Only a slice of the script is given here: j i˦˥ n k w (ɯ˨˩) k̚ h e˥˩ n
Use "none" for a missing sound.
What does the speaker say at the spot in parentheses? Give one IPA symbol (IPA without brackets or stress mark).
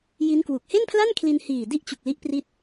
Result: u˨˩